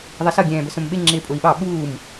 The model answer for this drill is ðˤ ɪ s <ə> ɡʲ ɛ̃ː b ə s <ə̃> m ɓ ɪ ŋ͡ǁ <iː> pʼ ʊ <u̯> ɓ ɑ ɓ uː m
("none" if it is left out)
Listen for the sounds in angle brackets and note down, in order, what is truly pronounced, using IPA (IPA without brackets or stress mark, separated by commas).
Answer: ʌ, ə̃, ɪː, i̯